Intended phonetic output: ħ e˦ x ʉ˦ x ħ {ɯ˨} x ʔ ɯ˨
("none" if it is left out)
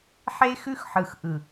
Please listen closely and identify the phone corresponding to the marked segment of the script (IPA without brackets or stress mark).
ɯ˨